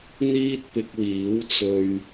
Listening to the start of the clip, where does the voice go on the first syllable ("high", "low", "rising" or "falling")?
high